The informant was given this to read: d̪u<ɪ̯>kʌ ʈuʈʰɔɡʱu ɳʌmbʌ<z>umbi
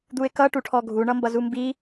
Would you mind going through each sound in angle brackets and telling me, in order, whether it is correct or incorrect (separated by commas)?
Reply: correct, correct